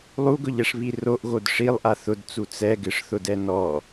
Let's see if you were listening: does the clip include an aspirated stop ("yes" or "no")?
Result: no